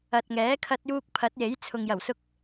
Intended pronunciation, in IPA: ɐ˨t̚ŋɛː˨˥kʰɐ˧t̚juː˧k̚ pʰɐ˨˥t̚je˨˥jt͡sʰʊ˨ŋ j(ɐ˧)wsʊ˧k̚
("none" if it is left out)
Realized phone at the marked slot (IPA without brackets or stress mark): ɐ˨˩